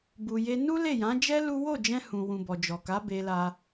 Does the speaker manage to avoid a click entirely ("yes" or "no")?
yes